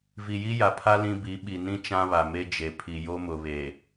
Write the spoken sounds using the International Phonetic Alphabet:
v i˨ j i˦ j a˨ pʰ a˦ l ĩ˦ b i˨˦ ɓ i˨ n ĩ˦ t͡ʃ ã˦ β a˨ m e˦ d͡ʒ e˨ pʰ i˨ j o˦ m ʊ˨ β e˨

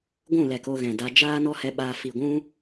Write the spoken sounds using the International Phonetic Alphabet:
ɡʷ ũ˦˨ l ɛ˨ k o˧ ɣ ɛ̃˨ d a˧ d͡ʒ aː˦ n ɔ˦ h ɛ˧ ɓ aː˧ f i˨ ɡʷ ũ˦

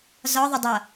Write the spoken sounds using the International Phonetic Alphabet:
z ɒ ðˤ ə dˤ ʌ

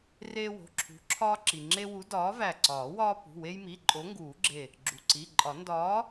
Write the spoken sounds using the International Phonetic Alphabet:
r eː˦ w o̤˩˧˩ ǁʰ ṳ˨˥ ǁʰ ɒː˦ ǁ i˩ ŋ͡ǁ e˦ w u˨˥ d ɒː˨˥ v æ˧˩ ǀ ɒː˨˩˦ w ɒː˦ p ṳ˩˧˩ w e˦ j m i˩˧˩ ǃʼ o˨˥ ŋ ɡ uː˨˩˦ ɡ͡ǁ e˧˩ | ɡ͡ǁ u˩ ǀ i˩˧˩ ǃʼ ɒ˨˩˦ n d ɒː˨˥

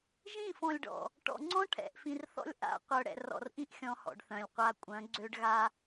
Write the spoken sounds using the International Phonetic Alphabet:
ʒ ĩ˦˨ f ɔ̃˨ lʲ ɖ ɔ̰˨ | ʈ ɔ̰˨ ŋ͡ǀ ɔ̃˦ ʈʰ ɛ̰˨ ʔ f ĩ˨ r θ ɔ̰˦ lʲ ʔ a̰˦˨ qʷ œ˨ ɽ ɛ̰˨ r ɔ̰˨ r ʔ ĩ˦ ʔ xʲ ɔ̃˦ h ɔ̰˨ ɖ θ œ̃˨ lʲ qʷ a˨ kʷʼ œ̃˨˦ ɡ͡ǀ ø˦ ɖ ɣ a˦

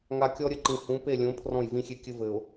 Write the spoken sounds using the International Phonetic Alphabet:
ŋ a˨ kʲ ɔ˦ ɾʲ ɘ˦ ǃ ĩ˨ h ũ˨˦ p e˦˨ lʲ õ˨˦ pʰ r ɔ̃˦˨ j v ĩ˦ xʲ e˦ kʲ ɘ˦ v ɘ˨ ʊ̯

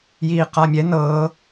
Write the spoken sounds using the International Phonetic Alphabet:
j iː q a mʲ ɛ n ɤː

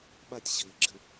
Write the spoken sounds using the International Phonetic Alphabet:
ɓ a tʲ ɕ ɘː ɡ͡ǁ ɘ

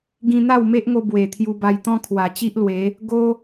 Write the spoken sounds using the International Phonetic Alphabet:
ɡ ĩ˧ n̪ a˥˧ w m e˦ ʔ ŋ o˧ b w e˨˩ t̪ʰ j u˧ b a˧ j t̪ ɔ̃˦ kʰ w a˨˩ t͡ɕ i˦ ʔ l w e˨˦ | ɡ o˦

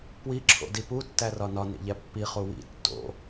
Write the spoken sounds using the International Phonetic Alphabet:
p w i ǁʰ o̰ d i p u tː æ r ɒ n ɒ n ḭ ʎ æ pː i χ u w ḭ tː o̰

